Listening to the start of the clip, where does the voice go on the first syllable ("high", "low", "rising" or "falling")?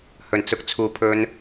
low